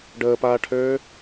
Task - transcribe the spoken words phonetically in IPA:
ɖ əː p aː ʈʰ øː

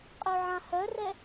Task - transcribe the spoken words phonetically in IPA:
qʼ œ ʕ ã h œ r ɛ

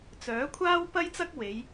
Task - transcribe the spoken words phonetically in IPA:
t͡s œː˨˥ kʷʰ aː˥ w p ɐ˥ j t͡s ɐ˥ k̚ w e˨˧ j

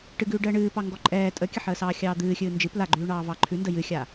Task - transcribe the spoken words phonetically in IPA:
ʈ ɨ ɡ ʉː ɖ əː ɳ ɨː p ɑ ŋ ɡ ɔ ǃʼ ɛː tʼ ə kʲ ə ħ əː s ɑː xʲ ɑː d̪ ɨː xʲ ɨː n d͡ʒ ɨ p l a ɡ͡ǃ ʉː ɳ ɑː v ɑ ǃʰ ʉ n d ə j ɨ xʲ a

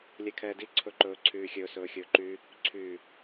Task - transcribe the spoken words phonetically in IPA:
lʲ ɛ kʰ ɛː d i ǀʰ ɵ ǃ ɵː ǀʰ yː xʲ ɵː s ɵː xʲ ɵː ǃ y | ǀʰ y

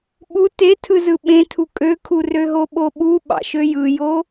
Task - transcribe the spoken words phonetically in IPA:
ɓ u t e tʰ ɯ z ɯ ɓ ẽ tʰ u kʼ ø kʰ u r ø ɦ o ɓ o ɓ u ɓ ɑ̰ ʃ ø j ɯ j o

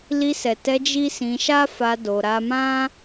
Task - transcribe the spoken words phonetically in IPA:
l i˧ s ɛ˨ t ɛ˧ d͡ʒ i˦ s ĩ˧ ʃ a˦ f a˧ d o˧ ɾ a˧ m ã˦

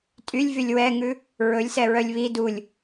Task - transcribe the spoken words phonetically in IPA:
tʼ y lʲ v y lʲ w ɛ ŋ ʉ | ɹ ɵ lʲ s ɛ ɹ œ lʲ β i d u lʲ

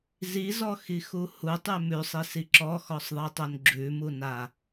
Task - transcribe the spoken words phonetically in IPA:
z i z ɔ x i x u h u tˤ ʉ m ʉ sˤ i s i ǁ ɔ x ɔ sˤ ðˤ i tˤ o n ɡ͡ǁ ʉ m u n a

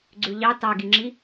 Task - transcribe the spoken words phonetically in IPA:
ɡ͡ǀ ʉ ʎ ɑ t ɑ ɡ i ŋ͡ǁ i

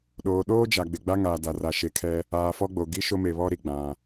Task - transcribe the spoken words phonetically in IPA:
ɗ oː˨ ɗ oː˦ d͡ʒ a˨ ɡ͡b ɪ˨ ɡ͡b a˦ ŋ aː˨ d a˨ r a˨ ʃ e˨ kʰ ɛ˦ | aː˨ f ɔ˦ ɡ͡b o˨ ɡ i˦ ʃ o˦ m e˨ β ɔ˦ ɾ i˨ ɡ͡b ã˨

